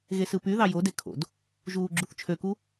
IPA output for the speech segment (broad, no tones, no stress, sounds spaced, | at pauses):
ɣ e s ɯ p y ð ɑ j o d e kʰ o̰ d | ʒ uː ɡ͡ǁ u θ t͡ʃʰ ø k u